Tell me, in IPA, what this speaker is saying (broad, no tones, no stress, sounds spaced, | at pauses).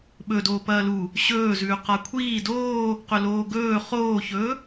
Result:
ɓ ɵ d oː p ɐː l u | ɕ ɵː z ʉː q a kʷʰ iː d oː | q ɵ l oː ɡ ɵː χ oː ç ɵː